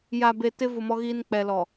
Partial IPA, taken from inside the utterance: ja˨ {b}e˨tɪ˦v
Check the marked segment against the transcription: correct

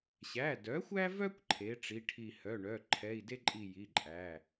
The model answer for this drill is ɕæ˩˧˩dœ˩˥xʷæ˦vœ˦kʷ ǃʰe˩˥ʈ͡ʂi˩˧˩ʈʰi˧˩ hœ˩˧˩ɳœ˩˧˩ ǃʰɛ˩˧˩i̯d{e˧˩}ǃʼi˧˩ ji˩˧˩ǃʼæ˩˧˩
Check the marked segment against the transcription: incorrect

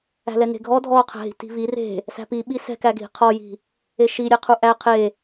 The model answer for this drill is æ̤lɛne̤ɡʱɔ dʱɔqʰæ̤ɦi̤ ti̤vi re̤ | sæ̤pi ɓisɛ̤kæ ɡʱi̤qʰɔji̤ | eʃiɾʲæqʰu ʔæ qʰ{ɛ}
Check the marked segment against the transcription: incorrect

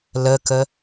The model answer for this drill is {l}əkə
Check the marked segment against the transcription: correct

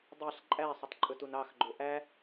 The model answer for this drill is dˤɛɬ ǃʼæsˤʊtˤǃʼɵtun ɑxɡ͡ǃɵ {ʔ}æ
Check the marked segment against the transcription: correct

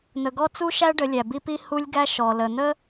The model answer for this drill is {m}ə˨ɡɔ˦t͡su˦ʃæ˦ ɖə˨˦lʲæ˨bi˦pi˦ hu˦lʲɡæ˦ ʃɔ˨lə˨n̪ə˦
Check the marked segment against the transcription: incorrect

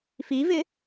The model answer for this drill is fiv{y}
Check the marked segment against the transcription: incorrect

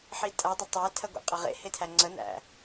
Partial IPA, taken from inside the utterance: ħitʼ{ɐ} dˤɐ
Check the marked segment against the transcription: incorrect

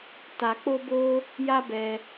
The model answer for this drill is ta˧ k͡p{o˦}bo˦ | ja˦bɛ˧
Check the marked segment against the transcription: correct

